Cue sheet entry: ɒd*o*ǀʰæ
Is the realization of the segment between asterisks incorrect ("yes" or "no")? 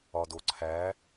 no